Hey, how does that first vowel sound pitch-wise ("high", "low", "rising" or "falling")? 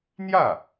falling